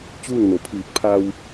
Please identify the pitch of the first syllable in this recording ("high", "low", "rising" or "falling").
falling